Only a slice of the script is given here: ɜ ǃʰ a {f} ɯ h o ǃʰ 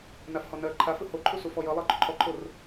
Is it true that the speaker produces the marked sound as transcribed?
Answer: yes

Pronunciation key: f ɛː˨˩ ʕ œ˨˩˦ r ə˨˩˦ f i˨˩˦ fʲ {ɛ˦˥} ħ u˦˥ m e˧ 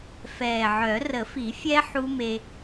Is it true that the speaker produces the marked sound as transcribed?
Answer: yes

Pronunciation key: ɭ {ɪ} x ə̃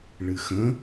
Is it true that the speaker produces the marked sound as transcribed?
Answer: no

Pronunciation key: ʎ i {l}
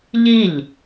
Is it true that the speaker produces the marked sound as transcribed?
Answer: no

